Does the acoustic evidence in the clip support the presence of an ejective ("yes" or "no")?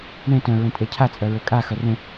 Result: yes